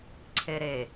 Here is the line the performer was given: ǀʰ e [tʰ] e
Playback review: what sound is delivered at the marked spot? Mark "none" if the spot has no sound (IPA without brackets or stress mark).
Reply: ɾ